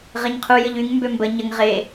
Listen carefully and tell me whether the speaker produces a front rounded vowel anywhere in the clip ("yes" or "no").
yes